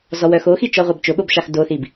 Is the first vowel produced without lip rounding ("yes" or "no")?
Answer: no